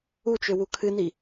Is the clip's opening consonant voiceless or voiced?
voiceless